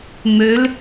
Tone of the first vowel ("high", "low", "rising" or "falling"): rising